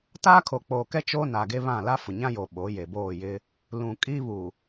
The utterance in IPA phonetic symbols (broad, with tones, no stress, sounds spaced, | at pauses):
t aː˦ kʰ o˨ k͡p oː˨ k ɛ˦ t͡ʃ oː˦ n a˨ ɡ e˦ β ã˦˨ l a˦ f ʊ˨ ɲ ã˦ j o˨ ɓ o˨˦ j e˨ b oː˦˨ j ɪ˦ | l ũ˨ kʼ i˦ β u˨